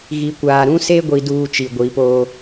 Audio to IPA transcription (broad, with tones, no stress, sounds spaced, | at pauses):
ɣ i˨ kʷ aː˨ ɾ ũ˦ s e˦ ɡʷ i˦ d uː˦ t͡ʃ i˨ ɡʷ i˨˦ p oː˦